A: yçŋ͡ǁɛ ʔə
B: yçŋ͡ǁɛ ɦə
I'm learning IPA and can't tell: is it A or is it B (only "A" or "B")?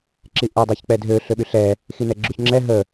B